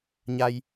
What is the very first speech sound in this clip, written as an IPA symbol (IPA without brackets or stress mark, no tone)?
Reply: ɲ